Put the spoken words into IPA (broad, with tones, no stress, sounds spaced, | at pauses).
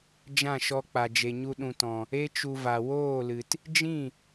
d͡ʒ ã˦˨ ʃ ɔ˧ k͡p a˨ d͡ʒ e˨ ɲ u˧ ɗ ũ˨ t ɔ̃˨ | e˦ t͡ʃ u˧ v a˨ w oː˦˨ l ɨ˨ t | d͡ʒ ĩ˦˨